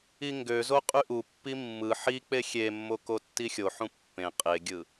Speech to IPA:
iŋɡøzo qʼyʔupːi mːɯ ħik͡pe xʲemːo kotːixʲoħũ pːẽ qʼeɡʲɯ

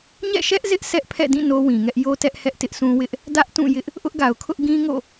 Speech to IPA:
ɲɛ̰˦˨ʃɛ˦ʔ zɪ˦ʔ sɛ˦ʔ pʰɛ̰˦˨dĩ˦˨ no˦wĩ˨ŋɛ˦ʔ jo˦tɛ˦ʔhɛ˦ʔ tɪ˦ʔsũ˦wɪ˦ʔ | dä˦ʔtũ˦˨jɪ˦ʔ | ʔʊ˦ʔɡa˨ʊ̯kʰʊ˦ʔ ɡĩ˦ŋo̰˦˨

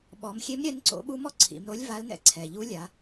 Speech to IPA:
ɓɔ˩˧mxʲe˧˥m ɾʲɛ˧˥nǀo̰˧˥ɓu˧˥mɔ˥ ǀʰḭ˩˧mɾo˧˥lʲ va˧˥lnɛ̰˧ ǀʰɛ˩ʎu˧˥lʲa˩˧

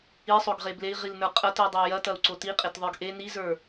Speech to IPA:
isˤoɡʁe blei̯ʁilnə˞ qʼɐtidˤə˞ jɐtɐu̯ǀo tiqʼetðˤə˞ɡ ʔe nizə˞

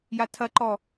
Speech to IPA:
jatʰɐǃɔ

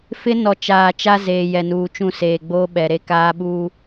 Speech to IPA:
fɪ˦nɔ˨ t͡ʃaː˨t͡ʃa˦zeː˨ jɛ˨nuː˨t͡ʃũ˦˨ seː˨ɡ͡boː˦ɓɛ˨ ɾe˦kaː˦ɓuː˦

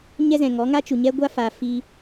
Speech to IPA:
ɲɛ˦zɛ̃˨ ŋɔ˨˦ ŋa˦t͡ʃu˨ ɲɛ˦ɡʷa˦ fa˨fi˧

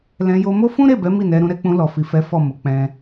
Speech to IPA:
lɛ̃˧ jo˧mo˦ fũ˦ɾe˦˨bɛ˨˦ mi˦˨nɛ˧ɾũ˧ ɾɛ˧k͡pũ˧ lɔ˨fi˨fɛ˨˦ fɔ˦˨mo˨˦k͡pɛ̃˧

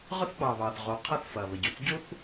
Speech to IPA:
ʁʊ˥θɡ͡bɑ˩βɑ˩θʁo˩ qʰɐ˥θfɐ˩βə˩ɟu˩θ ɟu˥θ

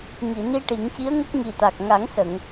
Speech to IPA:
ŋi˨˩˨ ni˧ ʈi˨˩˦ŋci˧˥ə̯ŋə˦˥k̚ ŋi˨˩t̪a˨˩k̚ŋa˨˩˦ŋsə˨˩˨ŋ

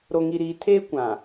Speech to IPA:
ɾo˨ŋi˨ɾiː˨ tʰeː˦kʷã˨

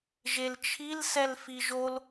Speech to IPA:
ʒelt͡ʃʰil sɛlfiʒol

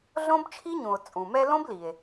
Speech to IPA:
ɮõ˥bt͡ʃʰi˥ɲũ˩o̯ t͡sʼũ˩mɛ˦lõ˥b li˩e̯

